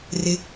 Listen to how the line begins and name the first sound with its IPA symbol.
r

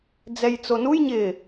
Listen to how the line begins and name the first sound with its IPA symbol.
d͡z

